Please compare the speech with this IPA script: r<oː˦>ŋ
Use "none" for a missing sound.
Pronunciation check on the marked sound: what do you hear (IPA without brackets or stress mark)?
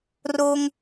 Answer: oː˦